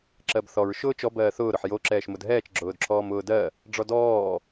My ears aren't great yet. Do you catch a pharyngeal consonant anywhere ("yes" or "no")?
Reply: yes